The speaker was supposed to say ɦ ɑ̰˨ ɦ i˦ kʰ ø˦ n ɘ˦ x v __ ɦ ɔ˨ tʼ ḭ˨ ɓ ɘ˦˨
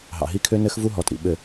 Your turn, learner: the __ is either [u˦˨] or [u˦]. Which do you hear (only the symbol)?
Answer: u˦